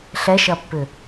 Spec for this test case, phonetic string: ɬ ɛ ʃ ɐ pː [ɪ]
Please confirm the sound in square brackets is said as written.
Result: no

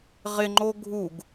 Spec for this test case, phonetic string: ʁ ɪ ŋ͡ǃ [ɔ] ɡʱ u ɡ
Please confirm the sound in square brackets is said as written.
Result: no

